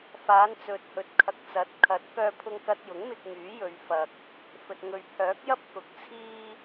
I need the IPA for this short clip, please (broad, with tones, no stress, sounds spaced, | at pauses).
f aː˨˧ n t͡s ɵ˨ t̚ h ɵ˨ t̚ kʰ ɐ˨ k̚ t͡s ɐ˨˥ t̚ kʰ ɐ˨˥ t̚ k œː˧ pʰ ʊ˧ ŋ k ɐ˧ t̚ j ʊ˨˥ ŋ m ɪ˧ k̚ ŋ yː˨˥ j ɵ˨˧ ɥ f ɐ˨ k̚ | f ɵ˨ t̚ ŋ ɵ˨˧ ɥ pʰ œː˨˥ k̚ j ɐ˥ p̚ k ʊ˨ k̚ t͡sʰ iː˥